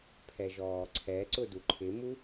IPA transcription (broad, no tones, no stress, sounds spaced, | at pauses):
pʰ ɛ ʒ ɔː ǀʰ ɛ ǀ ʊ d u ǃʰ ɪ m u